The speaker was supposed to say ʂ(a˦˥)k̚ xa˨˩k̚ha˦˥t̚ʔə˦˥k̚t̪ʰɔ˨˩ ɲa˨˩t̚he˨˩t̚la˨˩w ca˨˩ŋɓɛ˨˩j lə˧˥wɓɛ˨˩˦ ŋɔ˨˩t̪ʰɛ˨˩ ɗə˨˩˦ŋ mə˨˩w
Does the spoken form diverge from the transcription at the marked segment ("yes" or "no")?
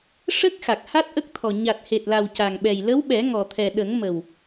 yes